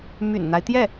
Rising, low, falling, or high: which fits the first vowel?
low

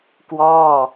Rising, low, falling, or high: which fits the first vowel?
falling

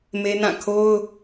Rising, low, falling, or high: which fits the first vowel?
high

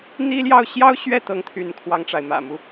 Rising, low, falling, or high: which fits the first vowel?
high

